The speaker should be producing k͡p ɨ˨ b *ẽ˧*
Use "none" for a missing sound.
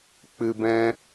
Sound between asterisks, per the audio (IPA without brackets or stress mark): ɛ̃˧